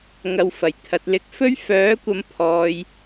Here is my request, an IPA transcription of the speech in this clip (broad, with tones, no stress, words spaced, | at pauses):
ŋɐ˨wfɐ˨˩jt̪ʰɐ˨t̚ lɪ˧k̚fɵ˥ɥ fœː˨˥kʷɐ˨˧mpʰɔː˨j